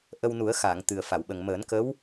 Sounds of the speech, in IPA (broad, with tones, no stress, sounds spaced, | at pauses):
ʔ ə˧ w n u˨˩˦ ə̯ x aː˨˩˨ ŋ t̪ ɨ˨˩ ə̯ f a˨˩˨ w ɓ ə˨˩ ŋ m əː˨˩˦ n k ə˧˥ w